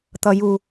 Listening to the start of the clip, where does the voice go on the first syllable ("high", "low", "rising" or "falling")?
low